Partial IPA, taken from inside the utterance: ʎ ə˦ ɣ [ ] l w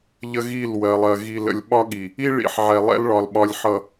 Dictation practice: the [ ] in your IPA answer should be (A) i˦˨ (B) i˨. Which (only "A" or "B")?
A